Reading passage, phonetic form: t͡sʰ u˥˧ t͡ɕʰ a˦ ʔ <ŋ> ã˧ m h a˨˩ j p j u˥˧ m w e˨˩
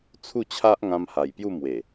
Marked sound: correct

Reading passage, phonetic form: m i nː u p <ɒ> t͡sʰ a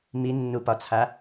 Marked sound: correct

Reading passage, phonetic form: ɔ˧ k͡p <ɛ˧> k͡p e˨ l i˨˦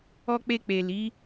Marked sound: incorrect: e˧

